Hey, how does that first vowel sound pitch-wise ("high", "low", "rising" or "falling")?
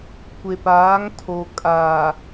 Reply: low